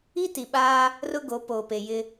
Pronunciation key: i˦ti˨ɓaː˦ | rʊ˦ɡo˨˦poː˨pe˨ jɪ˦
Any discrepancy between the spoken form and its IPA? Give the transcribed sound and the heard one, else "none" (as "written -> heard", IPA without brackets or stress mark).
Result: none